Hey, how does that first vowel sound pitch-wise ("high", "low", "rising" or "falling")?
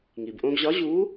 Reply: low